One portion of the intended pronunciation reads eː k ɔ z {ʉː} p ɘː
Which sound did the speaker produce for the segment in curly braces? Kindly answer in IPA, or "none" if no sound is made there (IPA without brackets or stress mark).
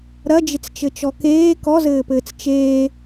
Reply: ɘː